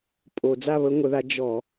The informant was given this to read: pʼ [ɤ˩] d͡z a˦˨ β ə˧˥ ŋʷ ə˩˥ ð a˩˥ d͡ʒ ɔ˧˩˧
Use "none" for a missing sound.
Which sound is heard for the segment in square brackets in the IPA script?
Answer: o˩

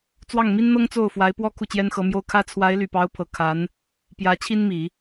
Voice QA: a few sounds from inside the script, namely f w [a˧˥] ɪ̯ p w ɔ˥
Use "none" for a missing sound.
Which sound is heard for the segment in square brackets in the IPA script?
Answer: a˧˥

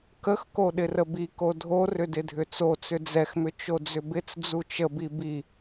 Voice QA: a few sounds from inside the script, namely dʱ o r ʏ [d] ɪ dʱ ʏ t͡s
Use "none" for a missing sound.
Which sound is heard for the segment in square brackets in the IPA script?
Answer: d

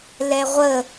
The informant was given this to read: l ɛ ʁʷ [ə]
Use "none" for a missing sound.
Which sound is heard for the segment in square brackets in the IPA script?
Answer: ə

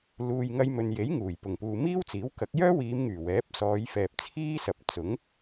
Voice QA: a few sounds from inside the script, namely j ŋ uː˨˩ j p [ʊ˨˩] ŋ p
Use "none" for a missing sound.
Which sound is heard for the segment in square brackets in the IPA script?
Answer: ʊ˨˩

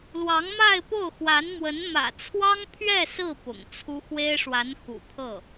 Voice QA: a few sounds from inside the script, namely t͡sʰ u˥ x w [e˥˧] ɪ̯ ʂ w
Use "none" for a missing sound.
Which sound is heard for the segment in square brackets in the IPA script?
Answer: e˥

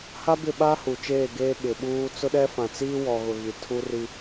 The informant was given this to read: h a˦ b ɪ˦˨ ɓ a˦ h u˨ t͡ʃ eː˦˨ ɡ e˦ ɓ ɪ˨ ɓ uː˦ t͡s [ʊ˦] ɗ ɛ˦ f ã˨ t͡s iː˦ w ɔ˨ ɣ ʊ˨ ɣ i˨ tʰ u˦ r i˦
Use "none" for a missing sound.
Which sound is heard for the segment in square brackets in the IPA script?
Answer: ʊ˦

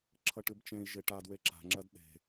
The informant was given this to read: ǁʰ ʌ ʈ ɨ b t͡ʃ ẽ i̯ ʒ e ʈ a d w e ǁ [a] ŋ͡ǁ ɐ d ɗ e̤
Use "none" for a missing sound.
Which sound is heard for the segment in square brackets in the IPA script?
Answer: a̤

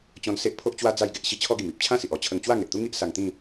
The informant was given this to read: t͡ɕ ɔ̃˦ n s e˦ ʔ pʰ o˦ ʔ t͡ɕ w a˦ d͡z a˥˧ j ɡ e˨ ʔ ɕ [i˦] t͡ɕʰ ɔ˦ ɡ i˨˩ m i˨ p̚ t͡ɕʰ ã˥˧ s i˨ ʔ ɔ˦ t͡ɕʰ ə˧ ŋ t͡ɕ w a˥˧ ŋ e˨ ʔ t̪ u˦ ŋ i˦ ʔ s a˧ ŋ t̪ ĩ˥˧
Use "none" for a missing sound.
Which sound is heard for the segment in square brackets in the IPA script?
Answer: i˦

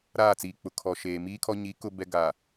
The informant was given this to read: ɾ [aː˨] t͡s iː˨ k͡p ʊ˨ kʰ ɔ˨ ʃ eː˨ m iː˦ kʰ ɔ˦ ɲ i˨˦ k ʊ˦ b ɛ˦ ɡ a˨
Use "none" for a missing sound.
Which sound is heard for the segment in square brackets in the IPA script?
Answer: aː˦˨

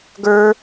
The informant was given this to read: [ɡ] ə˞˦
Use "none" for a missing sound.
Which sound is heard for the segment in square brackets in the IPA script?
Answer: ɡ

